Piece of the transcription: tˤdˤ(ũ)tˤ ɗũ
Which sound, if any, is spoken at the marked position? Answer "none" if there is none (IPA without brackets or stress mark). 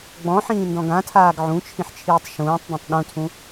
ũ